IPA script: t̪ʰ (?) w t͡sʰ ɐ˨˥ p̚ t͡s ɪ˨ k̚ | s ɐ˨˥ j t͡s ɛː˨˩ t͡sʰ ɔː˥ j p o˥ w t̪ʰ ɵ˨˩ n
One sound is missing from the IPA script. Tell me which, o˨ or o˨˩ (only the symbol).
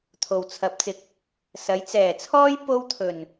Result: o˨